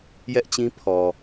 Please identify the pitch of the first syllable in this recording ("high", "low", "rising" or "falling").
high